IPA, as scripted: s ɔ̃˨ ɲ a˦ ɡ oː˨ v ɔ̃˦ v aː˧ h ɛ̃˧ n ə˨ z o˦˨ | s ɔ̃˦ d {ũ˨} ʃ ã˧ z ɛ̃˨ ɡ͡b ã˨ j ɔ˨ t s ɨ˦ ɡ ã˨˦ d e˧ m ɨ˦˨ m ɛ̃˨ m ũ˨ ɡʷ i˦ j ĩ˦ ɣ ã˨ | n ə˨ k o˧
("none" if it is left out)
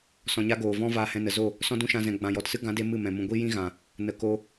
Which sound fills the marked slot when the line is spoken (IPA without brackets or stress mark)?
ũ˦